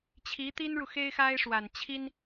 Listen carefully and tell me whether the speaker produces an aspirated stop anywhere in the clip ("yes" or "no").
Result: yes